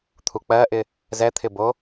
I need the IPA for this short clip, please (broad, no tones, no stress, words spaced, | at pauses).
t̪ʰuk͡pɜʔɪ | zɛt̪ʰɪbo